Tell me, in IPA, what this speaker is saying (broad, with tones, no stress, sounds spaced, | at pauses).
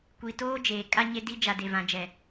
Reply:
kʷ iː˨ t oː˦ d͡ʒ eː˨ kʼ a˦ ɲ e˦ d i˦ d͡ʒ a˨ d e˨ v ã˨ d͡ʒ ɛ˨